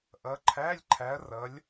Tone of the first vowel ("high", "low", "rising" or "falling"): rising